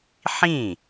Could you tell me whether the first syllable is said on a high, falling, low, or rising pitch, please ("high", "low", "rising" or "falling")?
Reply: falling